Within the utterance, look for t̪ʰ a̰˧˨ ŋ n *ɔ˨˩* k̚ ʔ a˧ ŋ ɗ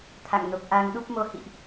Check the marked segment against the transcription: incorrect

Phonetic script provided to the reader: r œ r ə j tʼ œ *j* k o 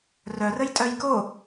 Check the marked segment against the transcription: correct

